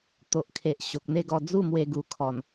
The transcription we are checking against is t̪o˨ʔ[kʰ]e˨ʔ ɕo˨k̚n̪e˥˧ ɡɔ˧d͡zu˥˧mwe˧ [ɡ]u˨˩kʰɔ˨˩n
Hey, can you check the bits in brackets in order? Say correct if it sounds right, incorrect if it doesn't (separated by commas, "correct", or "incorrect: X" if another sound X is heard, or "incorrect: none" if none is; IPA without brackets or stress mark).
correct, correct